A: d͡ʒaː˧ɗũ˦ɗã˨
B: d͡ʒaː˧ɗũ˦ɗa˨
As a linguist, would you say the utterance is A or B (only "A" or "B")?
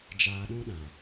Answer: A